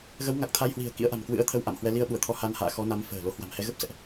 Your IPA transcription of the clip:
ɣ ə˨˦ w ŋ a˨˩ k̚ t̪ʰ a˧ j h w i̤˨˩ ə̯ k ḭ˧˥ ə̯ ʔ a̤˨˩ m k w ɨ̰˧˥ ə̯ t̪ʰ ə˧ w ʔ a̰˧˨ m h w ɛ˧ l i˧ ə̯ ɓ u˧˩ ə̯ t̪ʰ ɔ˧ h a˧ n h a̰ː˧˨ x ɔ˨˦ n a˨˦ m f ə̤ː˨˩ l o˨˦ h w a̤˨˩ m h ɛ˧ ɣ ə˦˥ p̚ s ɛ̰˧˨ ʔ

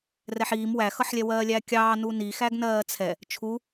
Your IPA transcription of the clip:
r ɛ ħ iː m w æ x ʌ ħ lʲ ɛ w ɜː lʲ æ kʲ ɑː n u n i x æ ɡ n ɜː t͡sʰ ɛ | t͡ʃʰ u

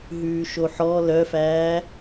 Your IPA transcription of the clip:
ɦ ʉː ʃ o ħ ɔ l œ f æː

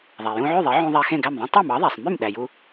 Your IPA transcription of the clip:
ðˤ æ˩ j ũ˧ ʕ y˥˩ ðˤ e˩˥ ʕ ũ˧ ðˤ æ˧ x ẽ˥˩ ɡ æ˥˩ m ðˤ ẽ˥ tˤ u˥˩ m ɑ˩˥ ðˤ æ˩ sˤ m y˥˩ m ɗ æ˩ j u˧

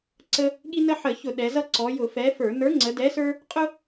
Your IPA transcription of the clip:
ǀ ə˦ | ɠ i˦ n ə˦ ħ ə˧˩˧ ç ʊ˧˩˧ ɗ ɛ˩˧ z ʌ˦ ǀ ɔ˩˧ j ʊ˧˩˧ f ɛ˨˥ f ə˞˧˩˧ n ə˞˨˥ ŋ͡ǀ ə˩˧ d ɛ˨˥ s ə˞˦ | qʼ ʊ˦

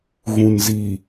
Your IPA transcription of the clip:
ɣ ũ˨ n z i˨

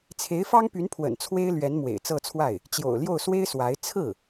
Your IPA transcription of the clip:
t͡sʰ e˧˥ ɪ̯ f ɑ˥ ŋ p y˧˥ n pʰ w ə̰˨˩ n t͡sʰ w e˥ ɪ̯ l ɥ ɛ˧˥ n m w ḛ˨˩ ɪ̯ t͡s ɤ˥˧ t͡sʰ w a˥˩ ɪ̯ | t͡ɕ j o̰˨˩ ʊ̯ l j o˥˩ ʊ̯ s w e˥ ɪ̯ s w a˧˥ ɪ̯ t͡sʰ ɹ̩˥˩

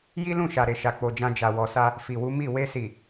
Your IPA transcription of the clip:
j i˦ l ũ˦˨ ʃ a˨ ɾ e˨ ʃ a˨ k͡p o˨ d͡ʒ ã˧ d͡ʒ a˨ w ɔ˨ s a˧ | f i˨ w u˨˦ m i˦˨ w e˧ s i˨

